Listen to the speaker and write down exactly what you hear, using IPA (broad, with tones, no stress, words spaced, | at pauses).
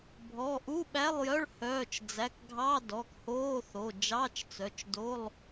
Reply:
bʱɔ˩˧˩ʔu˧˥˧ɓæ˧˥˧lˠjœ˧˥˧ɭ hœː˩˧˩t͡ʃd͡zæ˩˧˩kɡʱɑ˧˥˧ dɔ˩˧˩khoː˧˥˧θo˩˧˩ d͡ʒɑ˧˥˧t͡ʃt͡sœ˩˧˩t͡ʃdo˧˥˧lˠ